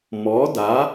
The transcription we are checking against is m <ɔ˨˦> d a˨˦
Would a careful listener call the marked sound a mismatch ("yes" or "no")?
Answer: no